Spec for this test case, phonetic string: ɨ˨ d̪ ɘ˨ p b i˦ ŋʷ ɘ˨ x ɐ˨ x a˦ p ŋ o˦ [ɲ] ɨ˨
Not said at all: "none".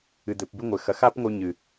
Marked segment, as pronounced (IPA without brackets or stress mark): ɲ